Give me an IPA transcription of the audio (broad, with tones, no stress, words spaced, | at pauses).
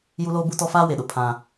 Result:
ju˦loː˦bu˦tɔ˦ faː˦we˨ɗʊ˨ pʰã˦